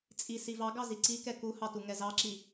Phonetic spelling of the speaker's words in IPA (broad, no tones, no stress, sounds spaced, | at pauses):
t͡sʼ i s i v ɑ ɡ ɑ z i ǀ i k ɛ k u h ɑ t u ŋ ɛ z ɑ ǁ i